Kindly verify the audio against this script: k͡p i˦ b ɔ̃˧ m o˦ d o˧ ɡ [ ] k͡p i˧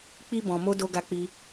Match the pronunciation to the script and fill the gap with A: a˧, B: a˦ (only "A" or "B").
A